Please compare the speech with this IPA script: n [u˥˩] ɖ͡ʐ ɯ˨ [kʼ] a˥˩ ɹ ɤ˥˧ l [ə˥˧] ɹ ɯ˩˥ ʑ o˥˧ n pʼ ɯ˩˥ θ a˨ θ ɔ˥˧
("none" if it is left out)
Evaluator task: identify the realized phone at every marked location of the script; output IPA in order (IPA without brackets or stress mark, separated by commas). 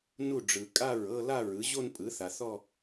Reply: u˥˩, kʼ, a˥˧